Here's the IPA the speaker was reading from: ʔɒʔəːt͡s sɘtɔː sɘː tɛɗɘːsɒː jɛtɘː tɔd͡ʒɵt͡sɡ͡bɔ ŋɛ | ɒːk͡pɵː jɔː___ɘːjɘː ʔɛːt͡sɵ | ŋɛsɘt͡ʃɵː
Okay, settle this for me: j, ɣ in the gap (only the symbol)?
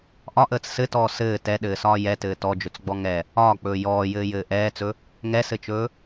j